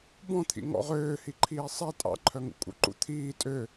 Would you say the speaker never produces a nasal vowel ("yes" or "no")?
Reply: no